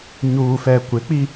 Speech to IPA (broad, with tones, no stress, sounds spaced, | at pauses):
ɲ uː˨ f ɛ˨ kʷ ɪ˨˦ k͡p i˦